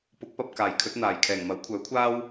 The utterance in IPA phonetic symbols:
p ʊ˨˥ k̚ p ɐ˨ p̚ k aː˨˩ j kʰ ɵ˨˥ t̚ n̪ aː˨˩ j kʰ ɛː˨˩ ŋ m ɐ˨˥ w kʷʰ œː˨˥ kʷʰ aː˥ w

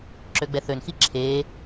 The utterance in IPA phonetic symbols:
ǁ ø ɡ͡b ɛ θ ø n x i ǁʰ eː

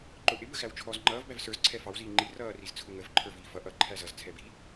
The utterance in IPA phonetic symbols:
ǃ ʊ ʔ ɪ b ə x æ w t͡ʃʰ ɔ z ŋ͡ǃ ʌː v b æ v s ə˞ z ǀʰ ɛ f ɑ w z iː ŋ͡ǃ i r ʌː r i z t͡sʰ ʊ ŋ ə v ǃʰ ə˞ v iː f ʌ ʔ ʌ ǃʰ æ z ʌ z t͡sʰ ɛ b i

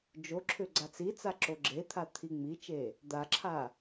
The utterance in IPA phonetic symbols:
d͡ʒ o ǁʰ ʏ ɡ͡ǀ a t͡s i t͡s a ǁ o ɡ͡ǁ e t̪ʰ a t̪ʰ i ŋ͡m i t͡ʃ e | d̪ a ǁʰ a

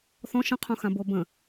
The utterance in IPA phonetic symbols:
θ ɔ̃ ʃ ə̃ qʰ õ x ã b o b ə̃

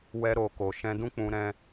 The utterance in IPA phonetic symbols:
w ɛ˧ ɾ o˨ k o˨ ʃ ɛ̃˧ d ũ˦ k͡p ũ˧ ɾ ɛ̃˦

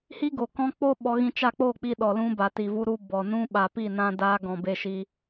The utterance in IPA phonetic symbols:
h i˦ ɡ o˨ k ɔ̃˦ k͡p o˦ ɓ ɔ˧ ɣ ĩ˧ t͡ʃ a˦˨ k͡p o˦˨ k͡p i˧ ɗ ɔ˨ l ũ˧ b a˨ t i˨ v u˧ ɾ u˧ b ɔ˨ n ũ˦ ɓ a˨ p i˦˨ n ã˧ d a˧ ɡ ɔ̃˨ b e˧ ʃ i˧

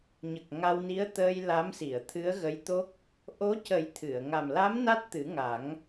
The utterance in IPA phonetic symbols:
ɲ ə˨˩ k̚ ŋ a˧ w n i˧˥ ə̯ t̪ əː˧ j l a˧˥ m s i˨˩˨ ə̯ t̪ʰ ɨ˧˥ ə̯ ɣ ə˧˥ j t̪ o˦˥ k̚ | ʔ o˧˥ c ə˨˩˦ j t̪ʰ ɨ˨˩˨ ə̯ ŋ a˨˩ m l a˧˥ m n a˦˥ t̚ t̪ ɨ˨˩˦ ŋ a˨˩˦ ŋ

